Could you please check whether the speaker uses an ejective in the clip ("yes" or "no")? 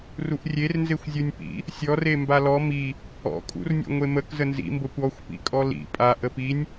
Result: yes